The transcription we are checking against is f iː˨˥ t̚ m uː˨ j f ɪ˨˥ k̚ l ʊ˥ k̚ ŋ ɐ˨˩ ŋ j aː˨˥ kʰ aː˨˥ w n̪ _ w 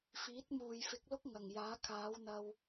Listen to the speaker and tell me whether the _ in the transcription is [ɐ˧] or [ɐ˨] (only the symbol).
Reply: ɐ˧